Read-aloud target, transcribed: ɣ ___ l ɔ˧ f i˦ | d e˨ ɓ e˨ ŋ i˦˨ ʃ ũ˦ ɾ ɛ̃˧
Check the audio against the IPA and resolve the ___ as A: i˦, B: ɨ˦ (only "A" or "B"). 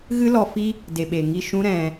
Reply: B